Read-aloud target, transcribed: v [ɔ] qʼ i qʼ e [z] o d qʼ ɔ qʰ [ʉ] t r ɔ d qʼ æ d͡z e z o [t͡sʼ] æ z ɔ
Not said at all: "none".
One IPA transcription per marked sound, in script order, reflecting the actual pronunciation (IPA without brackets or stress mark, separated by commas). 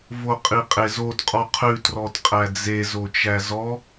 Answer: o, z, ʉ, t͡ʃ